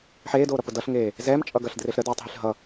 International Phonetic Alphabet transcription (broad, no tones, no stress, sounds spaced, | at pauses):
ħ eː d oː ɾ ʌ p ʊ d ʌ ɬ ŋ eː | z ɛː m t͡ʃʼ ʌ ɡ ɐ ɬ d r e ɬ ɾ ə d oː tˤ ɦ i ɬ ɦ ʌ